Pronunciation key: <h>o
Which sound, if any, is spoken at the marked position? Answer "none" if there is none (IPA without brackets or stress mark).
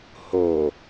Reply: h